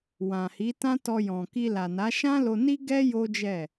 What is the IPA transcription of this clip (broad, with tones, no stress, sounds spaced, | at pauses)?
w ã˨ h i˨˦ t ã˦ t ɔ˧ j ɔ̃˨ k i˧ l a˨ n a˨˦ ʃ ã˦ l o˧ n i˦ ɡ ɛ˦ j o˦ d͡ʒ ɛ˦˨